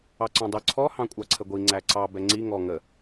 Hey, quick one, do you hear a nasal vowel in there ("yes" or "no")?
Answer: yes